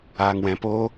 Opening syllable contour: low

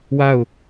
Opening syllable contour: falling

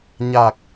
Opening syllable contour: low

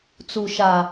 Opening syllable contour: low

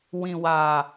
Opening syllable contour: low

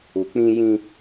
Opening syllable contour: low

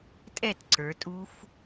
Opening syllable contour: falling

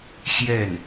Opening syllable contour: falling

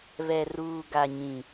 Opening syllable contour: low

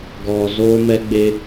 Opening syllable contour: low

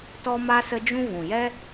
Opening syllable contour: high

